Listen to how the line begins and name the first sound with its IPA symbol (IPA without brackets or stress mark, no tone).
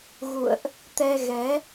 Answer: ɣ